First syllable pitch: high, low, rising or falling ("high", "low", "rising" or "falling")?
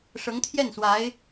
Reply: rising